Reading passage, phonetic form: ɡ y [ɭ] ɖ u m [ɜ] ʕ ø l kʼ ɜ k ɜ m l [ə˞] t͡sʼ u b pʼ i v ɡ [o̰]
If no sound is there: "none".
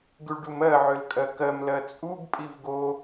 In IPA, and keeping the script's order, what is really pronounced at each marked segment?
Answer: ɭ, ɜ, ɜ, o

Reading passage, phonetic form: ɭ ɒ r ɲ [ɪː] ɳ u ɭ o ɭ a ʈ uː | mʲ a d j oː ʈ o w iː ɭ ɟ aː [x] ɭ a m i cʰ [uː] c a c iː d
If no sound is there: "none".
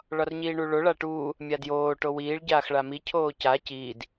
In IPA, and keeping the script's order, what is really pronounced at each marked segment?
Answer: iː, x, oː

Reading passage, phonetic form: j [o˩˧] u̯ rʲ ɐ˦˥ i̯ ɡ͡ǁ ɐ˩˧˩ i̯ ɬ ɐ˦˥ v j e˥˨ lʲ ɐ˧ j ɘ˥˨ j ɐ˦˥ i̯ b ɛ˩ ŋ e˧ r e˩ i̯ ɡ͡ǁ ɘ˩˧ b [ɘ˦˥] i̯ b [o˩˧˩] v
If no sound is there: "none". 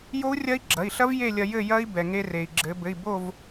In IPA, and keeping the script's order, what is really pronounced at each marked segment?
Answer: o˦˥, ɘ˩˧˩, o˥˨

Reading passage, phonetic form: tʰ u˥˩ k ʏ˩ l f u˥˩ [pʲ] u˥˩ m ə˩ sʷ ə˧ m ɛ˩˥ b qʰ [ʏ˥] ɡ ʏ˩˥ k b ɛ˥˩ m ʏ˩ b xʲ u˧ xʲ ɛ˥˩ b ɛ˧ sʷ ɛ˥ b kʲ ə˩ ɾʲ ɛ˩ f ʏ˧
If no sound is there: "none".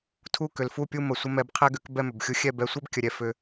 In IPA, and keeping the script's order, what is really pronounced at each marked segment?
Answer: pʲ, ɛ˥

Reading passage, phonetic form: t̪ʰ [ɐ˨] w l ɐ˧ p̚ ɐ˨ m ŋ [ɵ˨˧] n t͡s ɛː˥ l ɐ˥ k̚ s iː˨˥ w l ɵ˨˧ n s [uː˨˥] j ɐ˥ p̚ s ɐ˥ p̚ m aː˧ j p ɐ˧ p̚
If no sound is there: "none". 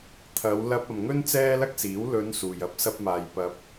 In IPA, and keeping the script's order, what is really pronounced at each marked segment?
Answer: ɐ˨˧, ɵ˥, uː˨

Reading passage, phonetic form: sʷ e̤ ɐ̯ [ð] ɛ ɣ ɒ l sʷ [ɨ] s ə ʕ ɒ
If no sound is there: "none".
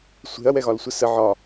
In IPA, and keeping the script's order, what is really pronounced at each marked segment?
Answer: w, ə

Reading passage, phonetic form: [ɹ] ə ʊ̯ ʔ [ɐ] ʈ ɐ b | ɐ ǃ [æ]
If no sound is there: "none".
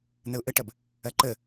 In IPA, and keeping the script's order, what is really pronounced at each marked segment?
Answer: n̪, ə, ə

